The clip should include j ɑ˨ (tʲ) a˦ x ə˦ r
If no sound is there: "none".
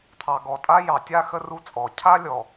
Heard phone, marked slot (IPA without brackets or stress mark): tʲ